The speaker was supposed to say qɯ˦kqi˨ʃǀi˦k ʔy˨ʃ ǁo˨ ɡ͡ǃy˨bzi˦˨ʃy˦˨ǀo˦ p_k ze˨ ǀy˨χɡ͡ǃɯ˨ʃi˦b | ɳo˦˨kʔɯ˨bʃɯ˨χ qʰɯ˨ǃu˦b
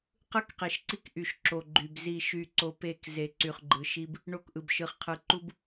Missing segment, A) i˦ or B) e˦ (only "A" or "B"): B